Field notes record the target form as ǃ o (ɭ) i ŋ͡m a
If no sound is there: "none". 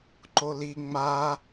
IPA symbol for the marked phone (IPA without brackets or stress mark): l